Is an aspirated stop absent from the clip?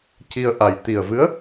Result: yes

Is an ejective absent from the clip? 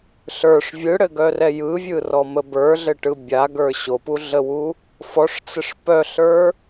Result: yes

